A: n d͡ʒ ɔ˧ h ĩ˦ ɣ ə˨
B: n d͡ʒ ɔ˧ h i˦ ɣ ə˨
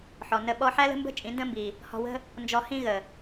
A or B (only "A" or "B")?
A